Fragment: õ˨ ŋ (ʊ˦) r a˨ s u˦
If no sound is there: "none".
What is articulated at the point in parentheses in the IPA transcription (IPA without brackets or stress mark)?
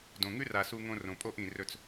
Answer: ʉ˦